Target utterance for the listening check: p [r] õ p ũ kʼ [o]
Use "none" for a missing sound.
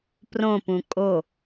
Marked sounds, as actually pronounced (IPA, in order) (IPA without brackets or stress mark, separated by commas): r, o